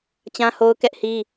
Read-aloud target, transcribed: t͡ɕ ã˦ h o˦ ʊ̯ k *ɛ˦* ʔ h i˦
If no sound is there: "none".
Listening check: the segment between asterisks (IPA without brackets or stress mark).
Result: ɛ˦